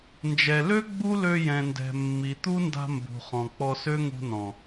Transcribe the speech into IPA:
nd͡ʒɛ˨lø˦ ɡ͡bu˦lø˧jɛ̃˨ ndɛ̤˨ mːi˨ t̪u˦nda̤˧ mbṳ˨χɔ̃˨ k͡pɔ˧sø˦ŋṳ˧ nɔ̃˨

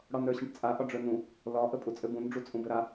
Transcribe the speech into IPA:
ɽɒnɾə˞ɕə̃ʈt͡sʼa ʔɒɖ͡ʐə˞nũ | lɒ ʔəpʼut͡sʼɘbũn ɖ͡ʐut͡sʼũbɘɾa

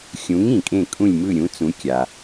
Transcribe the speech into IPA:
xʲũ˩˥ŋ ĩ˩kʼẽ˥˩kʼũ˥˩lʲmɯ˥˩ ɾʲũ˩˥t͡sũ˩˥ kʲa˩

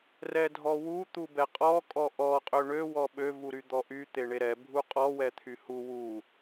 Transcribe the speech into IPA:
rɛdʱɔwu t̪ubɛqʼɔ kʼɔʔɔ qʼøɳø wɔɓø vuɾyd̪ɔʔy t̪eɳeɾɛ bʱuqʼɔ wɛt̪ʰyhu wu

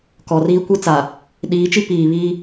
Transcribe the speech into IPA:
kɔ˨riː˦kʷi˦t͡saː˨ | ɗiː˨˦t͡ʃi˦ piː˨βiː˦

